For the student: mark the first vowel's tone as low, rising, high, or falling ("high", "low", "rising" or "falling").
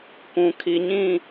low